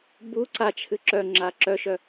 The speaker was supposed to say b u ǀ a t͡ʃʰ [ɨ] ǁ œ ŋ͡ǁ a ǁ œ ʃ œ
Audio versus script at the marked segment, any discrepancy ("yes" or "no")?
no